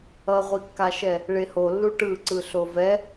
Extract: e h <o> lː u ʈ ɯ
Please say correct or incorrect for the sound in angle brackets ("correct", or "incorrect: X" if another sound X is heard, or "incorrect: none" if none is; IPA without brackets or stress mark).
correct